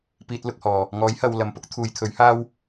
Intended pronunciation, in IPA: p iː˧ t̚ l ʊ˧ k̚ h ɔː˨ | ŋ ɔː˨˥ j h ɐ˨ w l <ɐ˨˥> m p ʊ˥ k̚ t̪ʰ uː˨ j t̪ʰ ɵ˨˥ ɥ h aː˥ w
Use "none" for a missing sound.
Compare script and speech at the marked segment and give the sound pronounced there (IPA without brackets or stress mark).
ɐ˨